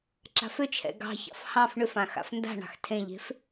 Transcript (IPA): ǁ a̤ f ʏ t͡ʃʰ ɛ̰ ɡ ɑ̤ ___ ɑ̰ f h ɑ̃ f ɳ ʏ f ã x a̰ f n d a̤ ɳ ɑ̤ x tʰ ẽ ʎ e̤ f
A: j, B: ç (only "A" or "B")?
B